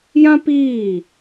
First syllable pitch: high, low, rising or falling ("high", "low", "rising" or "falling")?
high